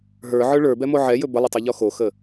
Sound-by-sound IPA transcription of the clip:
ɦə˞ʕə˞ ɭə˞bɛmo ʕɛjɵ bəlˠɪtˤoʎɔ xoxə

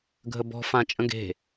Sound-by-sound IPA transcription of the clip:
ɡʱəbɔ̤ fãt͡ʃʼə̃ɡe̤

